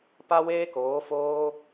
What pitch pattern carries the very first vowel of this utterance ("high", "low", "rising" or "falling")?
high